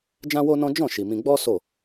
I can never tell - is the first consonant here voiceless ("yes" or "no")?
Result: no